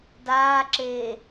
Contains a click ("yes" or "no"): yes